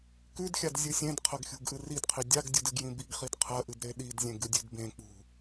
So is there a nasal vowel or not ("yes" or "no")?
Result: yes